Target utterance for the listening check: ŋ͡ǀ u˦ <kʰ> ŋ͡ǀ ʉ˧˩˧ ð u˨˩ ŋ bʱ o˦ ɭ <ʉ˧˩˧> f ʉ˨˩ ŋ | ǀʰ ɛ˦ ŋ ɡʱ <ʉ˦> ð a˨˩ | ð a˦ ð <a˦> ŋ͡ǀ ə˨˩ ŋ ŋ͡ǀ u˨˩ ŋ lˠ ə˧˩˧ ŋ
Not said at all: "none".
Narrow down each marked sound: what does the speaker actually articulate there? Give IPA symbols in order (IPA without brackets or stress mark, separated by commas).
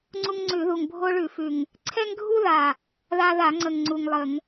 ŋ, ʉ˧˩˧, u˦, a˧˩˧